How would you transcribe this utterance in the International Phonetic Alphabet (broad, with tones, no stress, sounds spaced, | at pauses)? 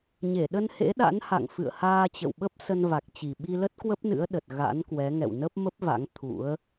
ɲ e˧˩ ɗ ə˧ n h ḛ˧˥ ɗ a̰˧˥ n h a̰˧˨ ŋ f ɨ̰˧˨ ə̯ h aː˧ t͡ɕ ə̰˧˨ w ɓ ə˦˥ p̚ s ə˧ n v a˨˩ k̚ t͡ɕ i˨˩ ɓ i˧ l ə˦˥ t̚ k w ə˦˥ p̚ n ɨ̰˧˥ ə̯ ɗ ə˨˩ t̚ ɣ a̰˧˥ n k w ɛ˨˦ ŋ ɛ̰˧˨ w n ə˦˥ p̚ m ə˦˥ p̚ v a̰˧˥ ŋ t̪ʰ ṵ˧˥ ə̯